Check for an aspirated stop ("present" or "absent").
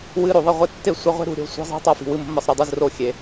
absent